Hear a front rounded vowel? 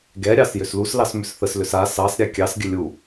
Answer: yes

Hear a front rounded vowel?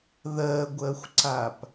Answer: no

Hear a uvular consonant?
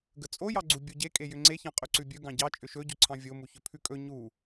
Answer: yes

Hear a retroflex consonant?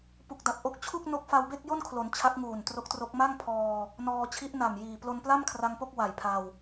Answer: no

